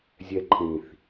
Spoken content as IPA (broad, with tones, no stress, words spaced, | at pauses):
zʲɛ˧ǃʰĩ˨θ